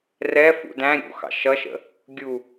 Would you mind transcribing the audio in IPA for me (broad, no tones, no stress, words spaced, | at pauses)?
rɛfṵ dæ̃ ɾʲṵxɑ̰ ʃʌʃə̰ | ɡʲu